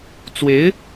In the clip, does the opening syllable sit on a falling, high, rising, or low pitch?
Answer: rising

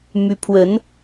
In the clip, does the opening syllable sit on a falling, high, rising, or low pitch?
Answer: high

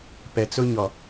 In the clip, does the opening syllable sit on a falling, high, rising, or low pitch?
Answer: low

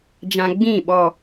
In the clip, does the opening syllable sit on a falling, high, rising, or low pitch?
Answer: low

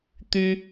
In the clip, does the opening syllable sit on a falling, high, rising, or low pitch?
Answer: high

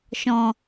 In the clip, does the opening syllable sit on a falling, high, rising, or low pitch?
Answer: low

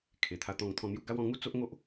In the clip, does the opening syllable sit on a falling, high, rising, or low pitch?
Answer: low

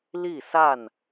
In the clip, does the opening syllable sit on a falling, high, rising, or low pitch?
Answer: falling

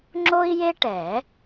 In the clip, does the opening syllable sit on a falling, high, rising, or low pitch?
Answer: high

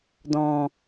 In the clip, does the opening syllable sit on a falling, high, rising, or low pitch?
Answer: low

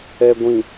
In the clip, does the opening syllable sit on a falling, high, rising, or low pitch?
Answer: low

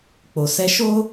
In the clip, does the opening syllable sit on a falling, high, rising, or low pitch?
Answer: low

